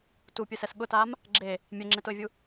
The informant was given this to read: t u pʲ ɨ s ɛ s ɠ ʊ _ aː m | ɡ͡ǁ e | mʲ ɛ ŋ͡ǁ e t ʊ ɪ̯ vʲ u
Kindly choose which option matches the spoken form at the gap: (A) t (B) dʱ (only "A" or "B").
A